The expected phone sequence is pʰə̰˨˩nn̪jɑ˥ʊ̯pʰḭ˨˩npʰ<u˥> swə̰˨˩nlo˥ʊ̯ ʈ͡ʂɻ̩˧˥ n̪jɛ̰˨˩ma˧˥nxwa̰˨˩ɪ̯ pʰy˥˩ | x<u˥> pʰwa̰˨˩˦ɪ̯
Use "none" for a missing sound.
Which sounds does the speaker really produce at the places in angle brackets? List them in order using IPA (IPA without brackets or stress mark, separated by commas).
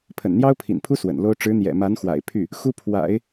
u˥, u˥